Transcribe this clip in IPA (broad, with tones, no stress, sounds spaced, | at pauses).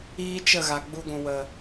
iː˦ t͡ʃ ə˦˨ ɣ a˨ ɡ͡b u˧ ɡʷ ũ˨ w ə˨